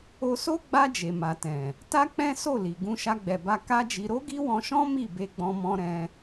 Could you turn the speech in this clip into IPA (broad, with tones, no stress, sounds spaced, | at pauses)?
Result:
o˧ s o˦ ɡ͡b a˧ d͡ʒ e˨ m a˨ t ɛ̃˨ | t a˦ k͡p ɛ̃˦ s o˦˨ l i˨ ɡ ũ˧ ʃ a˧ ɡ͡b ɛ˨ b a˧ k a˦ d͡ʒ i˧ ɾ o˦ ɡ i˦ w ɔ̃˧ ʃ ɔ̃˦ m i˦˨ b e˧ ɡ͡b ɔ̃˧ m ɔ̃˧ ɾ ɛ̃˧